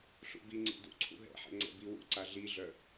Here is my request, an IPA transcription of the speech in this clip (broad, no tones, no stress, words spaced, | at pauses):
ɬṵbiŋ͡ǀḭ dṵǀʰṵ ɦɛ̰ħɛ̰ ŋ͡ǀɛ̰biwṵǀa ɮiɮœ